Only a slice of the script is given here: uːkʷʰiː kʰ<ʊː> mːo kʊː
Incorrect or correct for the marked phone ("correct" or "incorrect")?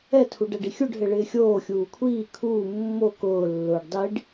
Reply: incorrect